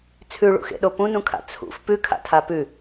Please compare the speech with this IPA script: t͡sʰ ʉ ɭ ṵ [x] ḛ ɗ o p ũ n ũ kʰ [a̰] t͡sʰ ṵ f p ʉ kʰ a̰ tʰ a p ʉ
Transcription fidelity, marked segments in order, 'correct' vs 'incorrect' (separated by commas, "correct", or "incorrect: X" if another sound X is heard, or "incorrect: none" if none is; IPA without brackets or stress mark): correct, correct